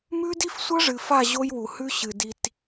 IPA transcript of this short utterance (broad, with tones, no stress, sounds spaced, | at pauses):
m ʉ˦ d i˦ f sʷ ɐ˦ ʐ ɨ˨ f a˦˨ ʑ o˦ j w u˨ h ʉ˦ ɕ ɨ˨ d i˧ t